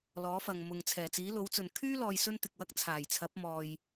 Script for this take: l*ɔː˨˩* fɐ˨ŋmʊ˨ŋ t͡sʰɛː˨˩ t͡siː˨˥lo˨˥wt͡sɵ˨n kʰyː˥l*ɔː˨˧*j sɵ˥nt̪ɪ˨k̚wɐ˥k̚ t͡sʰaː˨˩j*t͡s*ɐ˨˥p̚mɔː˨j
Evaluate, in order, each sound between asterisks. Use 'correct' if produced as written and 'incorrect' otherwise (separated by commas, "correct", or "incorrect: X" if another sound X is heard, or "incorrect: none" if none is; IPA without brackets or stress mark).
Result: incorrect: ɔː˨˥, incorrect: ɔː˨, incorrect: t͡sʰ